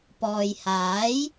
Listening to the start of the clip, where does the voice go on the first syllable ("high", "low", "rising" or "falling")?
low